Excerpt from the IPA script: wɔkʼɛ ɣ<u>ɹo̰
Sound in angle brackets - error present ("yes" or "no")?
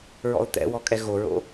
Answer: yes